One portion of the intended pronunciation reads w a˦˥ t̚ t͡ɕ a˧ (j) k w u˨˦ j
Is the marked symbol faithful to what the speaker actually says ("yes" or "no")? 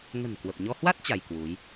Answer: yes